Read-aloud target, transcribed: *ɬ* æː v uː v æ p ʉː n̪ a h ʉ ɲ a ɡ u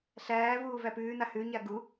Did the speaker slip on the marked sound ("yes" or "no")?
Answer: no